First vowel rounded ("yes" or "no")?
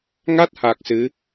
no